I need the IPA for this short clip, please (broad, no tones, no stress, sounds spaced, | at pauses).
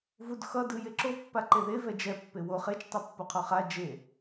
v u d x ʌ d ɯ j e ǁ o pː a ǃ e ð e v ɛ d͡ʒ ɛ pː e w o χ e t͡ʃ tˤ i pː o qʰ o χ a d͡ʒ e